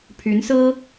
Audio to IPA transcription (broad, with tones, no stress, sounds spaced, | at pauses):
pʰ y˧˥ n s ɹ̩˥